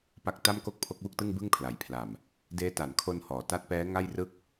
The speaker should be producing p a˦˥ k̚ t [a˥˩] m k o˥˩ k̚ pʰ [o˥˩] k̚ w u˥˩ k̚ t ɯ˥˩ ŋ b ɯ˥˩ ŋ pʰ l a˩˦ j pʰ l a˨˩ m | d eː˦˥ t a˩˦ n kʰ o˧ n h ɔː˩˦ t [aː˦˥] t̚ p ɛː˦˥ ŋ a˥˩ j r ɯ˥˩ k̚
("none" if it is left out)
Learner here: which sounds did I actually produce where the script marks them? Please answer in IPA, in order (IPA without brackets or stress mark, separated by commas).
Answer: a˥˩, o˦˥, a˦˥